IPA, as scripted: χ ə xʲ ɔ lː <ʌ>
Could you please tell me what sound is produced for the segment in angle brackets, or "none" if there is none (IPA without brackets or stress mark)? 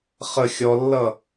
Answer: ʌ